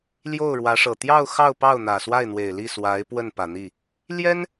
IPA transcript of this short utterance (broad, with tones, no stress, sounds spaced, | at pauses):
l j o˥˩ ʊ̯ ɻ w ä˧˥ ʂ ɤ˨˩ t̪ j ɑ˥˧ ʊ̯ x ɑ˥˧ ʊ̯ p ɑ˥˩ ʊ̯ n̪ ä˨˩ s w a˥˩ ɪ̯ n̪ w e˨˩ ɪ̯ l i˥˩ s w a˧˥ ɪ̯ p w ə˥˩ n p ä˨˩ n̪ i˥˩ | l j ɛ˥ n